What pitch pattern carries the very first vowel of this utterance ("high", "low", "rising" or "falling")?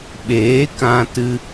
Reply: rising